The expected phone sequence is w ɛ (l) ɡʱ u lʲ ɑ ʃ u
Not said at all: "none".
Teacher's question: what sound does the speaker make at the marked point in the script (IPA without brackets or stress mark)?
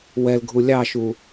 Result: l